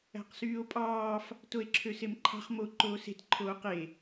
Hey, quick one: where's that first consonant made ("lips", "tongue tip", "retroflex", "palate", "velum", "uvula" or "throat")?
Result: uvula